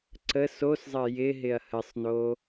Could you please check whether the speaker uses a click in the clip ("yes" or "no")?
yes